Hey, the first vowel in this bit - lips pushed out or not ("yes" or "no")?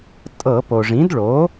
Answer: no